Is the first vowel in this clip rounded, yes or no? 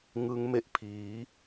no